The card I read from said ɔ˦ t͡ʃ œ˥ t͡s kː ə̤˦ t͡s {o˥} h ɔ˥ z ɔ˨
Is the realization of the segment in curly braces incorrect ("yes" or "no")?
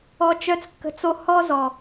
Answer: no